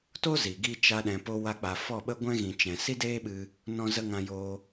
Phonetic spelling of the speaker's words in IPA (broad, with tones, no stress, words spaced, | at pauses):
to˦ zi˨ ɡi˧ t͡ʃa˧ɗɛ̃˨po˧ wa˧k͡pa˨fɔ˦˨ɓə˦ ɡʷɛ̃˦ɣĩ˨ t͡ʃɛ̃˨ si˦deː˦ɓɨ˧ | nɔ̃˧zə˧ ŋã˧joː˧